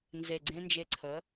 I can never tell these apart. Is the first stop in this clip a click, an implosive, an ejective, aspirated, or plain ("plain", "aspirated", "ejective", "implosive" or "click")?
click